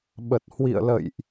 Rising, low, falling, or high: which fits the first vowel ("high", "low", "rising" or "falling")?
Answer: low